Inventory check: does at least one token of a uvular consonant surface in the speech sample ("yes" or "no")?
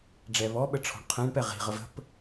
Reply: yes